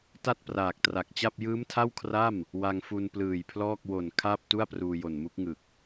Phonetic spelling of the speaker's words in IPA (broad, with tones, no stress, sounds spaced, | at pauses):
t a˥˩ t̚ p r aː˨˩ k̚ t r a˨˩ k̚ t͡ɕ a˥˩ p̚ j ɯː˦˥ m tʰ a˥˩ w kʰ r a˥˩ m | w a˧ ŋ f u˧ n p l ɯː˨˩ j pʰ l ɔː˥˩ k̚ w o˨˩ n kʰ aː˥˩ p̚ t u˥˩ a̯ p r uː˧ j o˨˩ n m u˦˥ k̚ ŋ ɯ˨˩ k̚